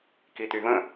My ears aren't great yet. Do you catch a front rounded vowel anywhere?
yes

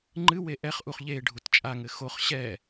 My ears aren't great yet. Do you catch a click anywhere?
yes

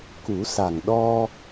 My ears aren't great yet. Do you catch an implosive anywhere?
yes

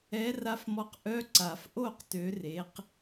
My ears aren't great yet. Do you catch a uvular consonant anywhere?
yes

